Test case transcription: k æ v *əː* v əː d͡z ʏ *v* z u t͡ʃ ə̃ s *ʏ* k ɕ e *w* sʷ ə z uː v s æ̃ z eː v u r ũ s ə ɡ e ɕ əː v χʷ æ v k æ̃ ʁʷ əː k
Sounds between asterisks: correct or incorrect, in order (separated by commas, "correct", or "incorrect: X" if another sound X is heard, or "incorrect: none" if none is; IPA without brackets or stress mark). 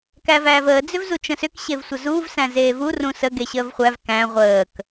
incorrect: æː, correct, correct, incorrect: v